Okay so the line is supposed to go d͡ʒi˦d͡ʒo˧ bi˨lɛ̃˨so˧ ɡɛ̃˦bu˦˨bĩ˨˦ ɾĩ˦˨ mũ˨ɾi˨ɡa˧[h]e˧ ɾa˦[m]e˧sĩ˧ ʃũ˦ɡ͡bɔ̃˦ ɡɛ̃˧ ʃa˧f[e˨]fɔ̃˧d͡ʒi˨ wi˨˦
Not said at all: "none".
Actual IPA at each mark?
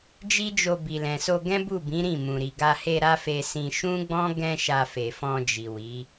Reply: h, f, e˨

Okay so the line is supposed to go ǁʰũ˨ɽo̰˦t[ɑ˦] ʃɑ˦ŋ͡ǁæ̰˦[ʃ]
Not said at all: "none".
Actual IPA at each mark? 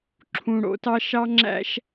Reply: ɑ˦, ʃ

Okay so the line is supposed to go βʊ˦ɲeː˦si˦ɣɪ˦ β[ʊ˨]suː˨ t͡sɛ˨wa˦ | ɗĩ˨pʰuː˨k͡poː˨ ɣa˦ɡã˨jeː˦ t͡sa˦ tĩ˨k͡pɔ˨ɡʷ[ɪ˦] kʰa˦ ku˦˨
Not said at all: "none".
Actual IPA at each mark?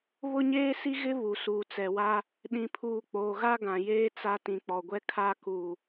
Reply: u˨, ɛ˦

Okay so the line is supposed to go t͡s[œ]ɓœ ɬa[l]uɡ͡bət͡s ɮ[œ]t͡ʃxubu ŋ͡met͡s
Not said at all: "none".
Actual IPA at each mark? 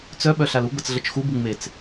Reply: œ, l, ə

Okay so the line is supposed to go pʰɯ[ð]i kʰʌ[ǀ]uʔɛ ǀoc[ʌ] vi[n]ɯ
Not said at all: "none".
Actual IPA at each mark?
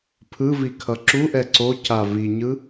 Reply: v, ǁ, a, ɲ

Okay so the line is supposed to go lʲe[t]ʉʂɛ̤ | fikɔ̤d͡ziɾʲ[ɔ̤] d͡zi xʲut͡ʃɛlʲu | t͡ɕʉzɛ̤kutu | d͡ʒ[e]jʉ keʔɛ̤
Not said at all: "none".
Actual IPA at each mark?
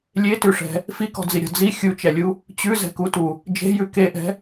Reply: t, ɔ̤, e̤

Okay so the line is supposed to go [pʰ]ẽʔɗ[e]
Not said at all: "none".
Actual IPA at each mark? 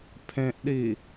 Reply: pʰ, i

